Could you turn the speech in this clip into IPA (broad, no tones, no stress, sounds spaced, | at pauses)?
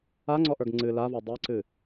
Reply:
a ŋ͡ǀ ɔ ʔ ə˞ ɡ ŋ͡ǀ ɨ l a v ɔ dˤ ɛ ǀ ɨ